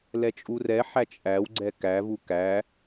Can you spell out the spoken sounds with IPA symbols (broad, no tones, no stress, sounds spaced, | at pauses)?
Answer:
l ɛ t͡ʃʼ u r ɛ ħ æ t͡ʃʼ æ w ɡ͡ǀ ɛ k æ v u k æ